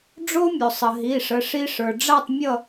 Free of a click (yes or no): yes